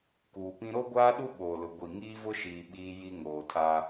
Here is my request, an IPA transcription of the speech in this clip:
kuː˨pĩ˦ ɾo˦ɡʷaː˦ɗu˦ ɓoː˨lʊ˨ ɡʷi˨ŋiː˦vʊ˦ ʃiː˨ ɓiː˦ji˦ ŋoː˨tʰa˦

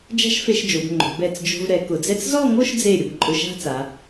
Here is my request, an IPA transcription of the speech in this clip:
d͡ʒa̤˥ʃfe˧ʃd͡ʒo˩˧b ŋ͡ǃo̤˩˧ bɛ˧˩t͡s d͡ʒo̤˧vɾɛ˩˧ kʊ˩˧d͡zɛ˥t͡s zɔ˥˧ŋo˥˧ʃd͡ze˧˩ ɾʲʊ˩˧bǃʼʊ˧˩ʃa̤˥˧ t͡sa˩˧

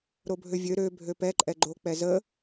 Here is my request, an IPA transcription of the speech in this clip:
ɾobʱøvʲø ɾø bʱøpɛǃʼɛ ɡ͡ǃok͡pɛ zə

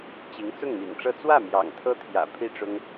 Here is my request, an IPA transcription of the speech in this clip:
t͡ɕi˧˥ŋ t͡sʊ˥˩ŋmḭ˨˩ŋʈ͡ʂɤ˥˧ t͡swä˥˩ mjɑ̰˨˩ŋt̪ʰɤ˥t̪ʰjä̰˨˩ pʰi˥˩ʈ͡ʂʊ˥ŋ

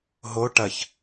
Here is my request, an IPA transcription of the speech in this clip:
ɦo ʈɐç

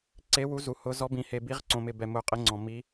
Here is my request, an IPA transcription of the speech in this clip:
ǀe˧˥wu˧˥ zu˧hʊ˧˥ zɔ˧˥bĩ˧he˧ bi˧˥ʁǀõ˧mɪ˧ bɛ˧ mʊ˧˥qʼɪ˧˥ŋ͡ǀɔ̃˧ mi˧˥

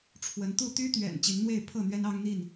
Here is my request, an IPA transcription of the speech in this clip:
ʈ͡ʂʰwə˨˦nt̪u˥˨ t̪y˦t̪ɥɛ̰˨˩n t͡ɕi˨˦nn̪we˥˨ɪ̯ pʰɤ˥˨n̪ɥɛ˦nɑ˦ŋn̪i˥˨n

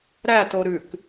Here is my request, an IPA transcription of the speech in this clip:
ɾæto ɾʉk

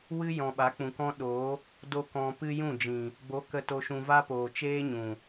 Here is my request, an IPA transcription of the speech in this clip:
wɨ˦ jɔ̃˨ɓa˨˦k͡pũ˨kɔ̃˦ ɗo˨˦ | do˦kɔ̃˧ pɨ˦jũ˦˨d͡ʒĩ˨ | ɡ͡bo˨˦ kə˧to˧ʃũ˧ va˦poː˨ t͡ʃeː˦ɲũ˨

